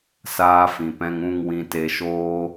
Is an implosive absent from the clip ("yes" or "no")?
yes